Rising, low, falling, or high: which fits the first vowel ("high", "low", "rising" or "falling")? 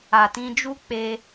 low